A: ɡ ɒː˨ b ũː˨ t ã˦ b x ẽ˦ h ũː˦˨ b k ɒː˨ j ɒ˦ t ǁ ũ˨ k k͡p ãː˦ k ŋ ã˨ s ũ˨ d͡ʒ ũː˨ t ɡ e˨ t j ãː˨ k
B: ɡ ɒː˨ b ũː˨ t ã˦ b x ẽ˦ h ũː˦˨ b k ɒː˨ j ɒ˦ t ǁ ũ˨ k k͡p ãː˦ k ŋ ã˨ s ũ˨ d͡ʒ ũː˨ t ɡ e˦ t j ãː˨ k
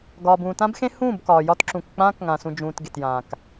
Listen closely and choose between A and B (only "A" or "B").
A